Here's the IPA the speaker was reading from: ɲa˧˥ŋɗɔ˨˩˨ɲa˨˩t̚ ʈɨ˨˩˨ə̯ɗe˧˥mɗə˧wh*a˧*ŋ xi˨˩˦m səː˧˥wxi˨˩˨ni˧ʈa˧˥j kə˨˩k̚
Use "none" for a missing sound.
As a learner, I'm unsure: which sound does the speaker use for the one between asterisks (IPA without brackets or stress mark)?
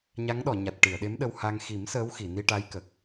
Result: a˧